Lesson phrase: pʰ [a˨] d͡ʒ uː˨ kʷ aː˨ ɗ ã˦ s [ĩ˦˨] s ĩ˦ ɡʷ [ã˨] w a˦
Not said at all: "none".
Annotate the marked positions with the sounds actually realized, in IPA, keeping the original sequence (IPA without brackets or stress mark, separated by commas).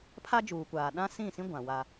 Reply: a˦, ĩ˦˨, ã˨